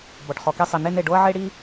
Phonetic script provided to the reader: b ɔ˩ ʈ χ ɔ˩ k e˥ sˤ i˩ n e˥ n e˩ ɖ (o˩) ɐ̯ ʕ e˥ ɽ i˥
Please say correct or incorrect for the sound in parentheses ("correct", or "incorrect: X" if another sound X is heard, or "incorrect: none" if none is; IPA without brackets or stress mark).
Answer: incorrect: o˥